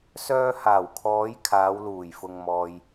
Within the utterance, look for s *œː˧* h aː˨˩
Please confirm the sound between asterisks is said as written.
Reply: yes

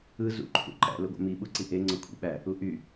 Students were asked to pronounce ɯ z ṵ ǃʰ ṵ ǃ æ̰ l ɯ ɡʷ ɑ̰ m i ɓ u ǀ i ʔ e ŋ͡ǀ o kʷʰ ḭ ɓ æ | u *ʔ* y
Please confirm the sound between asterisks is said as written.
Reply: yes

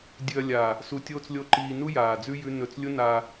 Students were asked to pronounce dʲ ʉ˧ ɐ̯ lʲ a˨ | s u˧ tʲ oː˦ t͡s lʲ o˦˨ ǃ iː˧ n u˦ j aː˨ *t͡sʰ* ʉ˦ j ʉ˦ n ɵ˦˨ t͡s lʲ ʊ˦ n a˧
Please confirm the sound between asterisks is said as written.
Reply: no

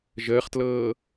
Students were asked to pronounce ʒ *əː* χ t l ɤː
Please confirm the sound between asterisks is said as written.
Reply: yes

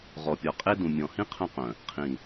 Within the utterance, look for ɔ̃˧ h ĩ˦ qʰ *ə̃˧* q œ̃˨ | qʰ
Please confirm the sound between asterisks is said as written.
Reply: no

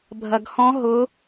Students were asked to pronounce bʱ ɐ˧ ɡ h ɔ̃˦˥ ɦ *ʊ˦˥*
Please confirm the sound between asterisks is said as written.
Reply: yes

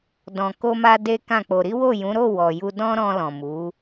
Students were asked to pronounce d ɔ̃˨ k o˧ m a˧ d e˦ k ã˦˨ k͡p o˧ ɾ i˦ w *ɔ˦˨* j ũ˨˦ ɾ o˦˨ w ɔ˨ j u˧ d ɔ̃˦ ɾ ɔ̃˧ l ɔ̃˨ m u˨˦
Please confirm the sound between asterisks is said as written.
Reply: no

